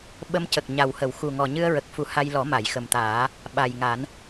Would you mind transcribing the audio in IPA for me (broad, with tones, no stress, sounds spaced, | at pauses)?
ɓ ə˧ m c ə˨˩ k̚ ɲ a˨˩ w h ə˨˩˨ w x u˨˩ ŋ ɔ˨˩ ɲ ɨ˧ ə̯ ɹ ə˨˩ k̚ f u˨˩˦ h a˧ j l ɔ˨˩˦ m a˨˩˨ j x ə˨˩ m t̪ aː˨˩˦ | ɓ a˨˩ j ŋ a˨˩˦ n